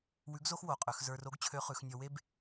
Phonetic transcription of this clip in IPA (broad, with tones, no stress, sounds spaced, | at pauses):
w ʉ˧˥ ɡ z o˥ x w o˩˧ qʼ ø˩˧ x z ə˞˧ r o˧˥ ɡ t͡ɕʰ ø˧˥ χ ʉ˩˧ x nʲ ɔ˧ w e˥ b